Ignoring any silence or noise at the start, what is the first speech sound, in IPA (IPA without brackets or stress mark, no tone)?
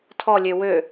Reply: tʰ